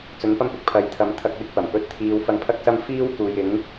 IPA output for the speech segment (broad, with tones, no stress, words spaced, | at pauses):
t͡sɵ˨˥npɐ˥mpɪ˧k̚pʰɐ˨j t̪ʰɐ˨˥mt̪ʰɐ˧k̚wɪ˧k̚pɐ˨˩m pɵ˧t̚t̪ʰiː˧w fɐ˧ŋpʰɐ˥k̚sɐ˥m fiː˥wkuː˨j ɪ˨˥ŋ